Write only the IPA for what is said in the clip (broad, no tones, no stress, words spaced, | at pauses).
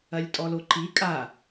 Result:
ɐlʲtʼɔloǃi kʼa